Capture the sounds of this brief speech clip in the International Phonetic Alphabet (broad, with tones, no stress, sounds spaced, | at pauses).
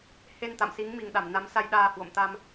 h e˧ n t̪ a̰˧˨ m s i˨˦ ŋ m i˨˩ ŋ ɗ a˧˩ m n a˨˦ m s a˧ j ɗ aː˧ h w o̰˧˨ m t̪ a˧ m